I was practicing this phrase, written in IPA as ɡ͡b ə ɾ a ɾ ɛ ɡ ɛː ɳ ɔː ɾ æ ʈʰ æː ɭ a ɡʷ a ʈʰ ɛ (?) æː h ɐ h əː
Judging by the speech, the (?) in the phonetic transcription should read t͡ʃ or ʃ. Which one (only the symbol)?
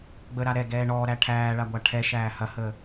ʃ